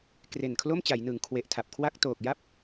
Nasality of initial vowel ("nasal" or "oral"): oral